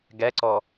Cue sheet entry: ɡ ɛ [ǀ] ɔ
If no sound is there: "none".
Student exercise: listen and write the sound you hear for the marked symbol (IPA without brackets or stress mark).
ǀ